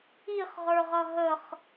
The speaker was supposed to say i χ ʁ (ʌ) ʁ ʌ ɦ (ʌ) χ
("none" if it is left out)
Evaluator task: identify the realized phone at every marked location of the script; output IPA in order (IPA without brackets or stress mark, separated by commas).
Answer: ə˞, ə